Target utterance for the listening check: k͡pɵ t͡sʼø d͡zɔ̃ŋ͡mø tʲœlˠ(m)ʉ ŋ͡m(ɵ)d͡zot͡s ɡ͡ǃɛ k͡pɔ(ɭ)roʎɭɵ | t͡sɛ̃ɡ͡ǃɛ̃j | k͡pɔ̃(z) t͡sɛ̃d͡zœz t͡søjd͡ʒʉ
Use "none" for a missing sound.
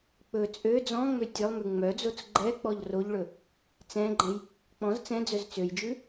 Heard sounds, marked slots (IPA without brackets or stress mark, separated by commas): m, œ, ʎ, z